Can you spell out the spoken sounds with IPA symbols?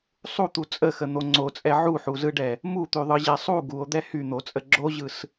sˤ u t̪ u t͡sʼ ə x ə n̪ o ŋ͡ǀ o t͡sʼ ɛ ʕ u ħ u z ɯ ɖ ɛ | m u t̪ y ðˤ ɯ ʑ ɛ sˤ u ɡ u o̯ d̪ ɛ h y n̪ o t͡sʼ ə ɡ͡ǁ o ʑ ɯ s

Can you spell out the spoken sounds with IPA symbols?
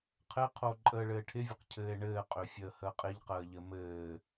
qʰ ɘ qʰ o ǃʼ əː ɭ ɘː ʈʰ ɪ vʲ ɘ q cʰ ɘː e̯ ɳ ɘː qʼ ø fʲ əː h əː qʼ ɪ ʎ q əː ʎ ɘ m ɘː

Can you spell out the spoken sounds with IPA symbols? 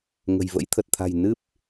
ŋ ə̤˨˩ j v ə̰˧˥ j t̪ʰ ə˨˩ t̚ t̪ʰ a̤˨˩ j n ɨ˦˥ p̚

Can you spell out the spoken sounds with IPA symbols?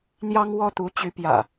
n̪ j ɑ˦ ŋ w ɔ˦ t̪ u˨˦ t͡ɕ y˨˦ p j ä̰˨˩

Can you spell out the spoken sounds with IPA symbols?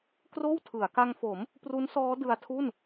k r oː˥˩ w tʰ ɯ˩˦ a̯ k a˧ ŋ f o˩˦ m | p r u˦˥ n s ɔː˦˥ d ɯ˧ a̯ tʰ u˥˩ n

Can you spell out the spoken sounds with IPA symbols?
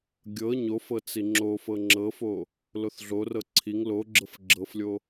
ɡʲ ɤ ɲ o f ɤ t͡s i ŋ͡ǁ o f ɤ ŋ͡ǁ ɤ f o | l o θ ɮ o r ɤ ǀʰ i ŋ l o ɡ͡ǁ ɤ f ɡ͡ǁ ɤ f lʲ o

